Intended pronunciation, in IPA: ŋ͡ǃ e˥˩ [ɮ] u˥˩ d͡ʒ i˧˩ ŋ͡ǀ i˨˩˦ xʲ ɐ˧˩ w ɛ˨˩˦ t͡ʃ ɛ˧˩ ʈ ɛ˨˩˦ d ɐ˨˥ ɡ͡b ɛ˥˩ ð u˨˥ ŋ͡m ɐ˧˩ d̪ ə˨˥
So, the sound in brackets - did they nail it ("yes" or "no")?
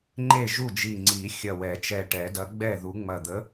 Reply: no